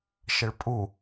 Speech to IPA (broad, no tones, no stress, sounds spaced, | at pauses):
ʃ ə ɭ pʼ u